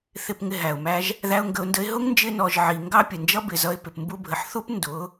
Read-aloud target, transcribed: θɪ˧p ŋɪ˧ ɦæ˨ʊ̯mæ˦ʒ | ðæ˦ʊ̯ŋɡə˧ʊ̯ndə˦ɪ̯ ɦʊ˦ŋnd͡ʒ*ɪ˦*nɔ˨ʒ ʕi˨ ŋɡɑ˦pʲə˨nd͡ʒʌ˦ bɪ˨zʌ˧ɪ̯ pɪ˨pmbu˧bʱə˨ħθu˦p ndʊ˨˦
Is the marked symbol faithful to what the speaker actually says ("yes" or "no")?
no